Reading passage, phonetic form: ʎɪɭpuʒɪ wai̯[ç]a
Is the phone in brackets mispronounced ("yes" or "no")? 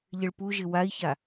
no